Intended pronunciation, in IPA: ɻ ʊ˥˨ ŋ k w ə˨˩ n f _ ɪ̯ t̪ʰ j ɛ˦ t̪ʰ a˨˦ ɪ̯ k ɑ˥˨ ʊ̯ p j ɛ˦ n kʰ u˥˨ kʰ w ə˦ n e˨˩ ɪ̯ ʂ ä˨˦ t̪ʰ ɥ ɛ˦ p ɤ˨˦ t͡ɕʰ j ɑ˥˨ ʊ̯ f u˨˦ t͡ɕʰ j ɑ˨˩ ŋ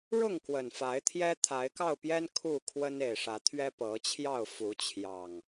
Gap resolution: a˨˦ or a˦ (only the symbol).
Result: a˨˦